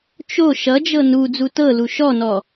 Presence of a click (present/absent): absent